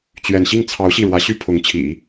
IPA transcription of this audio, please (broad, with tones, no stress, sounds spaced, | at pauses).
t͡ɕ ɥ ɛ˥˧ n ɕ i˥˩ ŋ t͡sʰ ɑ˧˥ ʊ̯ ɕ i˥˩ ɻ w ä˧˥ ɕ y˥˩ pʰ ʊ˧˥ ŋ t͡ɕʰ ḭ˨˩˦